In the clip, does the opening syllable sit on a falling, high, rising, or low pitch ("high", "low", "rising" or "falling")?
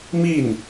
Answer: falling